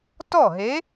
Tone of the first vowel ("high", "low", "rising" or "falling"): falling